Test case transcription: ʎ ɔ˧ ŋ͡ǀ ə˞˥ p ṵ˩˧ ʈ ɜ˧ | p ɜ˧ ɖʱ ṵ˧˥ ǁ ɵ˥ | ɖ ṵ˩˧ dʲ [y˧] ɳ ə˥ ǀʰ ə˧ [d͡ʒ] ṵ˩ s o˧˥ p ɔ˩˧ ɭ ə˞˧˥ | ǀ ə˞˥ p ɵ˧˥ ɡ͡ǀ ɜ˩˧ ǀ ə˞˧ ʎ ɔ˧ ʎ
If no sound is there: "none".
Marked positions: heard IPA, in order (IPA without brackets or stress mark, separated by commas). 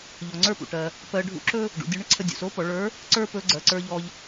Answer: u˧, dʲ